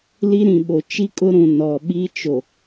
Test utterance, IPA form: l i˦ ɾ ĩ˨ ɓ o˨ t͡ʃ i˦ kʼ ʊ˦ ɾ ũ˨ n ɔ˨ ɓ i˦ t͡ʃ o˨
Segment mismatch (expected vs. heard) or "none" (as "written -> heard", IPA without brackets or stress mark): none